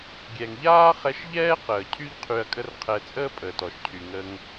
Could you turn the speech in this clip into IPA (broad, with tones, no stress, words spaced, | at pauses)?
ɡʲɛ˩ŋʎaː˥χɛ˧ʃʎɛː˥ qəː˩cʰy˥ʎ qʰy˧ɐ̯kʼə˥rqʰɛ˧ t͡sʼəː˥pʼəː˩tɔ˩ʃcʰy˩ ŋə˧ŋ